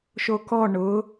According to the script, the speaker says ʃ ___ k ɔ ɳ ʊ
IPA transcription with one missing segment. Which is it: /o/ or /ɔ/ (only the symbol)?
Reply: o